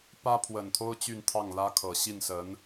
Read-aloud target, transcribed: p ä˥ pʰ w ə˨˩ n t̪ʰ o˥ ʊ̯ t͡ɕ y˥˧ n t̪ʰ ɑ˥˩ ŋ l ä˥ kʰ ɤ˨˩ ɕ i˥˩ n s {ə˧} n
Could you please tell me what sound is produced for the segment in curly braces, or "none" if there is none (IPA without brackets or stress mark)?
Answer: ə˧˥